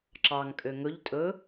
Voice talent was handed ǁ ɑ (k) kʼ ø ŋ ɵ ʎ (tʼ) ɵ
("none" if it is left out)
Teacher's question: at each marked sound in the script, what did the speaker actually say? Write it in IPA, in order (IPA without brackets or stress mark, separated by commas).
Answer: ŋ, tʼ